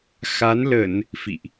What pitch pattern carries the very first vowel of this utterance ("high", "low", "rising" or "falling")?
rising